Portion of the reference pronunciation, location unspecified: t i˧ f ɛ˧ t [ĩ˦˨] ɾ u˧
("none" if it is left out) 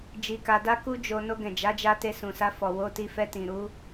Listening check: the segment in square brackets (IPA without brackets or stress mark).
ĩ˨